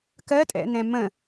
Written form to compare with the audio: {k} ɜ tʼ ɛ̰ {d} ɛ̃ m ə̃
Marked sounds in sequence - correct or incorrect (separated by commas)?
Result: correct, incorrect